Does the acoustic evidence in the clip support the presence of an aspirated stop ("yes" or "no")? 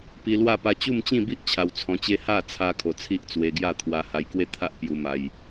yes